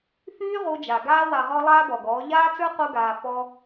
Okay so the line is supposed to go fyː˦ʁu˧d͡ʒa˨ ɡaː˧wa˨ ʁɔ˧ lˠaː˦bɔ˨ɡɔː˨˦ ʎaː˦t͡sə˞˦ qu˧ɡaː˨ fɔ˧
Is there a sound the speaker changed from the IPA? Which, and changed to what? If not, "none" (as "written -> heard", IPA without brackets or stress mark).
none